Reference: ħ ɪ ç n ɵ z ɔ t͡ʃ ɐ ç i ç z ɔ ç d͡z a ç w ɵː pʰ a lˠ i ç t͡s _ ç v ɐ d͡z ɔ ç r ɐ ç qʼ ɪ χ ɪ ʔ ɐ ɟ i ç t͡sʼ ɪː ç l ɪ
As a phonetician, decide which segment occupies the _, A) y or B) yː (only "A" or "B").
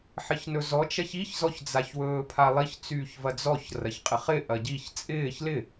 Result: B